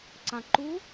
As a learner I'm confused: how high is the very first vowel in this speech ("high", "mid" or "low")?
low